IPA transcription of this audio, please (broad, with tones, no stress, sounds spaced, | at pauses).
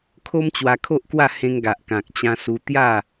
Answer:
kʰ o˦ m t͡ɕ w a˧ kʰ o˦ ʔ k w a˥˧ h ẽ˧ ŋ ɡ a˨ ʔ k ã˨ k̚ t͡ɕ ã˧ s u˧ t̪ j a˥˧